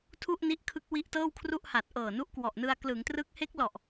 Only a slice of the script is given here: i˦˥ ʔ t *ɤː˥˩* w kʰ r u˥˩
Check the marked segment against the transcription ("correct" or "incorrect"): correct